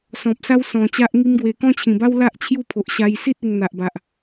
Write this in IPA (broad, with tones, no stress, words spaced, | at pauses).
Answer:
sɔ̃˨p̚sa˦wsɔ̃˨˩ t͡ɕa˦ʔŋi˦mɡwe˧ kɔ̃˦t͡ɕʰĩ˨˩ba˦wla˦ʔ t͡ɕʰju˦pʰo˨ʔ ɕa˧j si˦t̚ e˧ŋn̪a˨ʔba˨ʔ